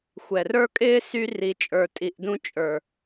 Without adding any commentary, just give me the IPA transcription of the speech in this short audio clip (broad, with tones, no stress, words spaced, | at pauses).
xʷɛ˨rə˞˦kʼɪː˦ sy˧ri˨ t͡ʃʼə˞˨tʼi˨ʔdũ˧ t͡ʃʼə˞˨